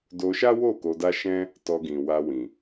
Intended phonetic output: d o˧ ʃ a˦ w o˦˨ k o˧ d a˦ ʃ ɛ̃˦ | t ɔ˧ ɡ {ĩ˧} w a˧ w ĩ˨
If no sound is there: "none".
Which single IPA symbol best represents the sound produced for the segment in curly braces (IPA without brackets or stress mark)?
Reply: ĩ˨